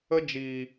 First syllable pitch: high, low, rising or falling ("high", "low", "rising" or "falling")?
high